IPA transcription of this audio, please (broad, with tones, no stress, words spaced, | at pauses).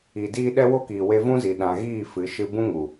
i˨diː˦ ɗɛ˦wo˦kiː˨ we˧vũ˦zi˨ ɗã˨ɣiː˦˨ fɨ˨˦ʃɨ˦ bũ˦ŋu˨